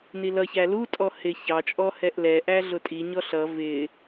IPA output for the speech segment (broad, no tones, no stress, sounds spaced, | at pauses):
n i l ʌ ç æ l u tʼ ɔ h ɪ ç ɑ t͡ʃʼ ɔ h ɛ ʔ l ɛ ʔ æ ɮ ʊ tʼ i ɲ ɔ ɬ ʌ v ɪ